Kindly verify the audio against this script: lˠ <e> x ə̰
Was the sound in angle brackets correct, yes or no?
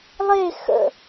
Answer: yes